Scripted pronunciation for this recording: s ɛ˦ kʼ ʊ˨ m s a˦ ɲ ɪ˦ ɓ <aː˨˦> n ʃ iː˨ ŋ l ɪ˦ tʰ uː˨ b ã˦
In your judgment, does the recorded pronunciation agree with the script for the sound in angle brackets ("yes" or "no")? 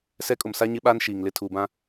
no